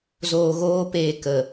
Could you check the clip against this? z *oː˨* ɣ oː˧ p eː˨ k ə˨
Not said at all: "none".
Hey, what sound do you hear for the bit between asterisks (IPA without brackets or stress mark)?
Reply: oː˨